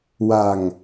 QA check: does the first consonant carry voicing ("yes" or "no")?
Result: yes